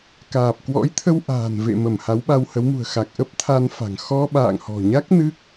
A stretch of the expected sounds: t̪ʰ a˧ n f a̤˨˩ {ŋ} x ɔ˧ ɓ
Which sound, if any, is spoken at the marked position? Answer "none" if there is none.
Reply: ŋ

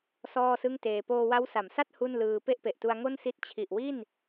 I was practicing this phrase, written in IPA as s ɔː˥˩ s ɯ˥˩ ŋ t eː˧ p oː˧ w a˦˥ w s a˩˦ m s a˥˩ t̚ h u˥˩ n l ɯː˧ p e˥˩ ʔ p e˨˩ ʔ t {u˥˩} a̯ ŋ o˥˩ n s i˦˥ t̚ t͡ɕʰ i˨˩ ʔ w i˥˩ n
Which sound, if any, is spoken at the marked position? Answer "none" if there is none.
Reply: u˧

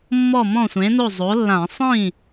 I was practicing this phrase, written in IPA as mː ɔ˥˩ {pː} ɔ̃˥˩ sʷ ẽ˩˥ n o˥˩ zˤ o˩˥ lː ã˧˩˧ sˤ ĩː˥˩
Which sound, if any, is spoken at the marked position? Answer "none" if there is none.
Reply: m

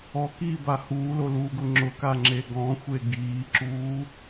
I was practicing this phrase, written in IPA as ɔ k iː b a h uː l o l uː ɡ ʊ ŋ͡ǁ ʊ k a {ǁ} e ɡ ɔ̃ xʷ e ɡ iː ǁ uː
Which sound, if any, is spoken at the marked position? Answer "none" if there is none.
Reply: ŋ͡ǁ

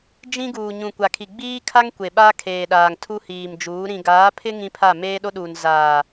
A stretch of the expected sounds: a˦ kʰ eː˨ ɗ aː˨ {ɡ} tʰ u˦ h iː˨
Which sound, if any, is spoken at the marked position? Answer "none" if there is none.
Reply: ŋ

